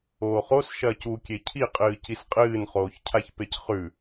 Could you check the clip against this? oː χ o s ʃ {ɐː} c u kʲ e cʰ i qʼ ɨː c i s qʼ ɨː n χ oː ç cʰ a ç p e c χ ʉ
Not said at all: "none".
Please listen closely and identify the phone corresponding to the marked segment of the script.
ɐː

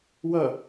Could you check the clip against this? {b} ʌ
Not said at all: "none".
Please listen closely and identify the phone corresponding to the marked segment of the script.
w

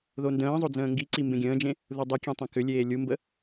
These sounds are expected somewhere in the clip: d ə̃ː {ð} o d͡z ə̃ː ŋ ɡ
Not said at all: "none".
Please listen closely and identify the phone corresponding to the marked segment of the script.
zˤ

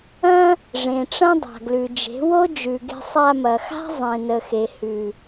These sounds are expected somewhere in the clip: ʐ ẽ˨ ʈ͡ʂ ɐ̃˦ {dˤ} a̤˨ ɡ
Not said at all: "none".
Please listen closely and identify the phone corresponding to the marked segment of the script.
dˤ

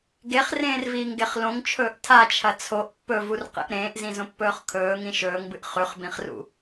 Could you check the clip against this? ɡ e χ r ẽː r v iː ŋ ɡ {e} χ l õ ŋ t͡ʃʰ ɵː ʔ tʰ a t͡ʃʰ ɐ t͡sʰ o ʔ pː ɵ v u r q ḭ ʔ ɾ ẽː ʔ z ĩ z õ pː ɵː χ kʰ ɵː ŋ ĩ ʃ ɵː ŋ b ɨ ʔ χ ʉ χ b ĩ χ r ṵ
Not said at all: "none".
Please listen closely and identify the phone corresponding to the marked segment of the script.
e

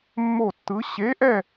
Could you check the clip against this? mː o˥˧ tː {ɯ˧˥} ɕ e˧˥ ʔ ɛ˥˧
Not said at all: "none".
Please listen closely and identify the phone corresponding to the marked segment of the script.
ɯ˧˥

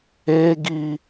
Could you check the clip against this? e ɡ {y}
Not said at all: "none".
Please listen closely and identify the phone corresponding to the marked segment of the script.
i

